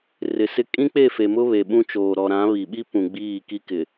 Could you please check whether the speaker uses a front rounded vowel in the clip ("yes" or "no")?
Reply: no